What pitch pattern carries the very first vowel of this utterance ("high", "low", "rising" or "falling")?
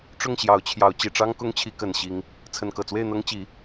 falling